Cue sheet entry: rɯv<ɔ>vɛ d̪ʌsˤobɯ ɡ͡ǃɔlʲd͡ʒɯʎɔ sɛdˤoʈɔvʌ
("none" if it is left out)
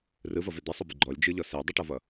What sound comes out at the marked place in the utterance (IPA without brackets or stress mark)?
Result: ʌ